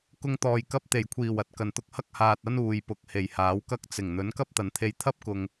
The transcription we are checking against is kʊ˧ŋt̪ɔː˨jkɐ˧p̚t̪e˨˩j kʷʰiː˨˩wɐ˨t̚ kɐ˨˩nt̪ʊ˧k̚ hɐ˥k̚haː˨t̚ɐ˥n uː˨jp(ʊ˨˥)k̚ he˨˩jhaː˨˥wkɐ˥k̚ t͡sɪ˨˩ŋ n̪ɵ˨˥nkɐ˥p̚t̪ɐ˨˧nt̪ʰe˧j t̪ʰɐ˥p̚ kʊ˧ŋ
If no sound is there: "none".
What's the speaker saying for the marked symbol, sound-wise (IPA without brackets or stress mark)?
ʊ˨˥